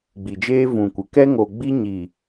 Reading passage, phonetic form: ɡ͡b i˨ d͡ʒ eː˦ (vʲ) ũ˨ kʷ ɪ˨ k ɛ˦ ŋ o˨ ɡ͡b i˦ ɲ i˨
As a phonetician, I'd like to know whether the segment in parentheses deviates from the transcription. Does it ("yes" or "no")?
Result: yes